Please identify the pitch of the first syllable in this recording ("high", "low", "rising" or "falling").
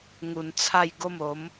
low